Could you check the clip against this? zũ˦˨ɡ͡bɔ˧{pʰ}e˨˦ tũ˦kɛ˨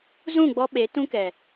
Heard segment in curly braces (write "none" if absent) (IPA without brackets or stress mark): ɓ